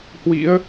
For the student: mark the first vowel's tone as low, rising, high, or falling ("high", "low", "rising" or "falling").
rising